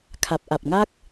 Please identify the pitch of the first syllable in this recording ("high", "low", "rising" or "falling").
low